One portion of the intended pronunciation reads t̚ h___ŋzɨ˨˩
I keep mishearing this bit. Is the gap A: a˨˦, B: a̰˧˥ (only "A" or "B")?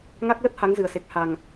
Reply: A